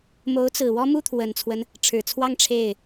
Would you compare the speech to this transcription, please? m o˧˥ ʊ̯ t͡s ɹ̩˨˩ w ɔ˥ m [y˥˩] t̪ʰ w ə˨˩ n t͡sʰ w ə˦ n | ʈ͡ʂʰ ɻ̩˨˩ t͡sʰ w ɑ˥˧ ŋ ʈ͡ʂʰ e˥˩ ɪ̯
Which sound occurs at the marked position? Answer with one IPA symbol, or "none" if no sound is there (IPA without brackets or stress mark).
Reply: u˥˩